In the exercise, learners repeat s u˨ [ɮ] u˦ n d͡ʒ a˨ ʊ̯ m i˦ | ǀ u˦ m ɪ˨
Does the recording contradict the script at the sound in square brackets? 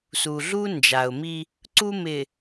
no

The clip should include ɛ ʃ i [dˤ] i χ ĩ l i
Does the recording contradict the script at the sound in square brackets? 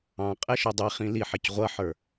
no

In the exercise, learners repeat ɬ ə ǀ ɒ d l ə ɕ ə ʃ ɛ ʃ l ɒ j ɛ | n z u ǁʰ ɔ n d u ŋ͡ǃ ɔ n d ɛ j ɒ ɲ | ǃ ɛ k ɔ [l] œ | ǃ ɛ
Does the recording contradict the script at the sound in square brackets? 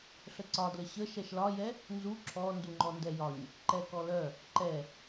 no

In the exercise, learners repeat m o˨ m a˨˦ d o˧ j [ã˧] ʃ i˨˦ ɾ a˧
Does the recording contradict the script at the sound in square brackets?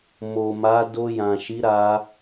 yes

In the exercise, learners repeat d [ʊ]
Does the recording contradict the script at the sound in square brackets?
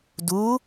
yes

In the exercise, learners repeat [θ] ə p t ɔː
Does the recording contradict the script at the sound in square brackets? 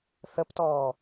no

